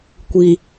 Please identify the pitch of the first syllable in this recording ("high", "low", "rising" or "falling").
low